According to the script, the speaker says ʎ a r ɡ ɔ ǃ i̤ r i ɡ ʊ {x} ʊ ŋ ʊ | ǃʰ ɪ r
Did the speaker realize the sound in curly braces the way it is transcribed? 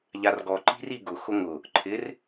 yes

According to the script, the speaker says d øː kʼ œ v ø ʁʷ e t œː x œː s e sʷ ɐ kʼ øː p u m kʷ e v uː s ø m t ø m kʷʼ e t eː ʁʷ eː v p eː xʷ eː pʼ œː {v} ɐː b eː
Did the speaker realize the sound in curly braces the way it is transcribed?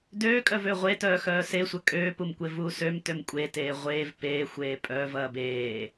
yes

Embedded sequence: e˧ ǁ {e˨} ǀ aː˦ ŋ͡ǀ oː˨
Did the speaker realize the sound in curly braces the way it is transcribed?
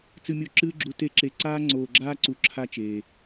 yes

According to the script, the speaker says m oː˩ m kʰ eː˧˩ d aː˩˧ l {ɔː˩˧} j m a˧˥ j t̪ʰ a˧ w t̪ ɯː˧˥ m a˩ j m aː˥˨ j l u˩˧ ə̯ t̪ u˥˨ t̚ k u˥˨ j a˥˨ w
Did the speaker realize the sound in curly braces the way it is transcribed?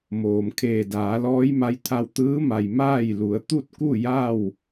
no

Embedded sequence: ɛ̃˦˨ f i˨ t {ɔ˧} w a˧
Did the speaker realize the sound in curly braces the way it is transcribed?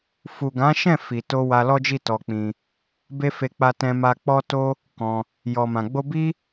no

